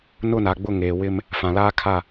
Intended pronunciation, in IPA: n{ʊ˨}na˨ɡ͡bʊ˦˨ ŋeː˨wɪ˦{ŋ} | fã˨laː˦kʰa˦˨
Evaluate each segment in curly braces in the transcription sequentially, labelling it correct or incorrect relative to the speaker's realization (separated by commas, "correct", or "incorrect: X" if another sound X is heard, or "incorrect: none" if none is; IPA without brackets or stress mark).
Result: incorrect: ʊ˦˨, incorrect: m